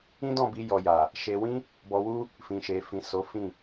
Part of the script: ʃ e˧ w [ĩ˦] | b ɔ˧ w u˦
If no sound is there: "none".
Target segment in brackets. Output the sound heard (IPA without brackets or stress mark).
ĩ˦